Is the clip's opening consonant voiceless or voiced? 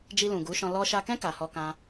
voiced